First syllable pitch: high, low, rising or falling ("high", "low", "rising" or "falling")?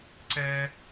high